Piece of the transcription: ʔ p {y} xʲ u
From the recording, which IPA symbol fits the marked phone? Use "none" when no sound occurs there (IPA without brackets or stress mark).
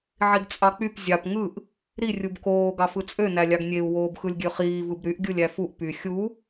y